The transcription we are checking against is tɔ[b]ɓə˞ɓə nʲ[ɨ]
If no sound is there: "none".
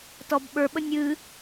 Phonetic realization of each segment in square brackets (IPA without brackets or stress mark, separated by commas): b, ɨ